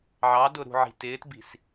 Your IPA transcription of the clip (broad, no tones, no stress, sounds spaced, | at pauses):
ʕ ɑ d ʊ ɾ ṳ ʕ i̤ t ɪː t b i̤ s